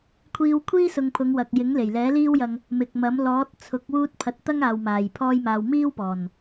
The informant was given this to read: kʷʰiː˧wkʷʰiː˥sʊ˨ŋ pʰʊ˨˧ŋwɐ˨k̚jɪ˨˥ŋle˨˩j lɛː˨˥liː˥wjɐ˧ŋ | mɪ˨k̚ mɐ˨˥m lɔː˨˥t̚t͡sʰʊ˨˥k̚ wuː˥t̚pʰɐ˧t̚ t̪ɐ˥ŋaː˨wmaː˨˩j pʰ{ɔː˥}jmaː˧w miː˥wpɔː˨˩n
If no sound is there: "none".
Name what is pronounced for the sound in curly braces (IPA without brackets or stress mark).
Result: ɔː˥